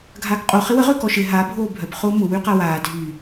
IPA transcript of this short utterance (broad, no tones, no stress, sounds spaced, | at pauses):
ɡʱ aː k qʼ o χ ɪ w ə ʁ ø k ɔ ʃ ɪ ɦ a bʱ oː bʱ œ p χ ʊː m ʊ w y q a w aː dʱ y